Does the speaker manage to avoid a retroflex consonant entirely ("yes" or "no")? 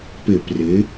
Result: yes